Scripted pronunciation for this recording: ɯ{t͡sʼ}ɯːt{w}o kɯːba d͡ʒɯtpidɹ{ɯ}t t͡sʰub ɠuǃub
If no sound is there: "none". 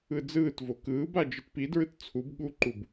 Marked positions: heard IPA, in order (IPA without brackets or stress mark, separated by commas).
d͡z, v, ɯ